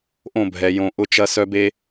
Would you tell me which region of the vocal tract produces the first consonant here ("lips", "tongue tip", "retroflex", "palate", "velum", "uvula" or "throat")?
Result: throat